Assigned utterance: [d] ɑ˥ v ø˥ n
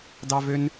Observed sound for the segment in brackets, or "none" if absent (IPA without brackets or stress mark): d